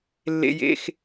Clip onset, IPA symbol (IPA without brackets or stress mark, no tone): lː